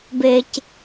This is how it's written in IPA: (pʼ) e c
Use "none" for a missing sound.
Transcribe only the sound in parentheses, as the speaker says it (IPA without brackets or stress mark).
b